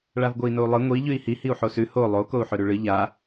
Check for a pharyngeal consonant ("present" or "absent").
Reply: present